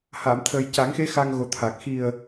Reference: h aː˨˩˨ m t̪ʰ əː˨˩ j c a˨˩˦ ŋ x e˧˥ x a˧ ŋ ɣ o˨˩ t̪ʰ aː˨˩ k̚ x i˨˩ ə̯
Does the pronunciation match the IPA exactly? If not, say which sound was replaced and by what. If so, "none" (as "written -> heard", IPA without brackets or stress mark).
none